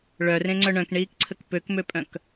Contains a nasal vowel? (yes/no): yes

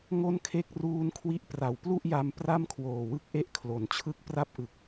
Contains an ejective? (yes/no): no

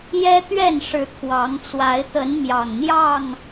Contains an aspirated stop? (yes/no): yes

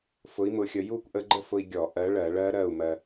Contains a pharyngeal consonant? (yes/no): no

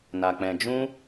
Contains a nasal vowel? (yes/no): yes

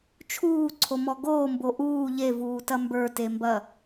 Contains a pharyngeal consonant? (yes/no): no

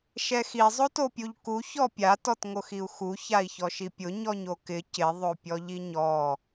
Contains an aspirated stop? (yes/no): no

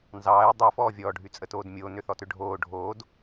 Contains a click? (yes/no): no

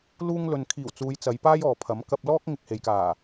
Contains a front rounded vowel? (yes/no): no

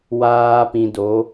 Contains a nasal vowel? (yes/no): yes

